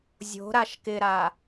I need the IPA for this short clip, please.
zʲ o̤ ɾ a ʃ k ɪ ɾ a

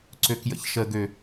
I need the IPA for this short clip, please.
ǀ ø k j ə̰ ç ʃ ə ɡ ø

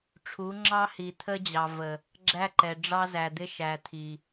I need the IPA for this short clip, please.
ʈ͡ʂʰ u˨˦ ŋ͡ǁ ɑ˦ h i˨ t̪ʰ ə˦ d͡ʑ ɑ˨ v ə˨ | ɡ͡ǁ æ˦ ǃ ɛ˨ ɖ͡ʐ ɑ˦ z æ˨ d̪ ɪ˦ ʃ æ˨ t̪ʰ i˨

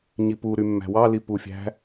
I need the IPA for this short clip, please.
ɲ i p u ɾ y mː æ̤ w ɑ l i p u fʲ æ̤

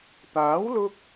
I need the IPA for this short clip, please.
t̪ aː˨˥ w l ʊ˧ k̚

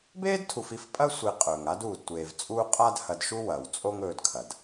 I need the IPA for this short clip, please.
b eː˥ d tʰ u˨ f i˥ f pʼ ɐ˥ sʷ i˨ qʼ ɵː˩ ŋ a˦ d uː˩ d tʷ eː˩ v t͡sʼ uː˦ qʼ a˦ d h ɐ˨ d ʃ u˦ w ɐ˩ w t͡sʼ o˦ ŋ ɵː˨ d kʰ ɐ˩ d

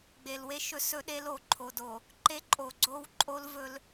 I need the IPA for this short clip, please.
ɡ͡b e˨ l w e˦ ʃ ɵ˦ s ɵ˦ ɗ e˦ l o˨ ǃʰ o˨ d o˨ | ǃ e˦ ǃʼ o˨ ɡ͡ǀ o˦ w ǃʼ o˦ l v ɵ˦ l

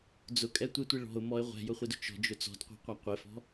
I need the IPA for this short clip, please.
d͡z ʊ kʼ ɛ tʷ ɪ tʷ i ɭ ɔ̤ ʊ̯ m ɔ ɪ̯ ʁʷ ɛ̤ j ʊ χʷ ɪ d ʊ t͡ʃ ɔ̤ d͡ʒ ʊ t͡s ɔ̤ d qʷ ɛ̤ qʷ a qʷ ɪ f ɔ̤

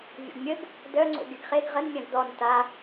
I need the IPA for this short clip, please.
vʲ o̰ ɡ mʲ ə ɡ | d œ ŋ͡ǀ o̰ ɡ ɪ ɡ χ e ɡ ʁ ə n mʲ ã ɡ d ɔ n t a

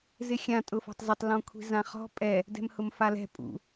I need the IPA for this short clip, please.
z ɪ xʲ ã tʼ ʊ f ɔ̤ tˤ z ɪ tˤ l ɔ̃ kʷʰ i̤ z ã χ ɔ̤ pʼ ɛ | d ɛ̤ m h ʊ m f a l ɛ̤ pʼ ṵ

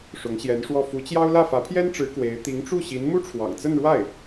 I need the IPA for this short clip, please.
ʂ ʊ˧˥ ŋ ɕ j ɛ˧˥ n ʂ w ɔ˥˩ f u˧˥ t͡ɕ j ɑ˥ ʊ̯ l ä˥˩ f ä˧˥ pʰ j ɛ˥ n ʈ͡ʂ ɻ̩˧˥ k w e˧˥ ɪ̯ t̪ i˧˥ ŋ ʈ͡ʂ u˥˩ ɕ i˧˥ n m u˥ ʈ͡ʂʰ w ɑ̰˨˩ ŋ t͡s ə˥˧ n ɻ w a˥˩ ɪ̯

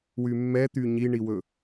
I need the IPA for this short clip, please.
w y mː ɛ t̪ y ɲ i ɳ i w ɵ

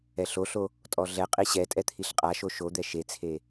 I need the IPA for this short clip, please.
ɛ ɬ o ɬ o | tʼ ɔ ɮ ɛ qʼ i ɕ ɛ tʼ ɛ t̪ʰ i ɬ qʼ a ʃ o ʃ o d̪ ɛ ʃ e t͡sʰ e

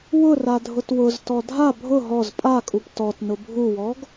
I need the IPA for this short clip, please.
w ʊ r a dʱ ʊ t w ʊ z t ɔ dʱ a bʱ ʊ ɦ ɔ z pʼ a kʼ u p t ɔ t n ʊ bʱ u w ɔ ɡ

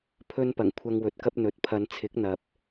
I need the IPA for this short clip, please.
pʰ ɵ˥ n p ɐ˨˩ ŋ kʷʰ ɐ˧ ŋ w ɵ˨ t̚ k ɐ˥ p̚ n̪ ɵ˨ t̚ pʰ ɐ˨˧ n t͡sʰ ɪ˨˥ k̚ n̪ ɐ˨ p̚

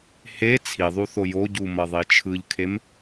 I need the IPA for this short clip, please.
h e t͡sʰ i ðˤ u θ o j o ɟ u m ʌ ðˤ i t͡ʃʰ ɯ ʎ kʰ e m

